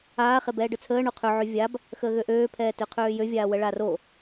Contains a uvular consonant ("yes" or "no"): yes